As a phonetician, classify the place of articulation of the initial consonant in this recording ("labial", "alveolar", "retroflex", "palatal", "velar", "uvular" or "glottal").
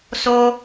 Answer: alveolar